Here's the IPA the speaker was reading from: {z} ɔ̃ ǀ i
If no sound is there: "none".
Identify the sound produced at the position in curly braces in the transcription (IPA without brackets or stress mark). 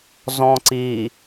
z